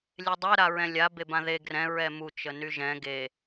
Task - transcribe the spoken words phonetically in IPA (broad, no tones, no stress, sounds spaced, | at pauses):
lʲ e dˤ ɛ ɾ a ɹ ɛ̃ lʲ a b e b ã ð e ɡ r ɛ̃ ɹ ɛ m u t͡ʃ ə n y ʒ ɛ̃ ɡ e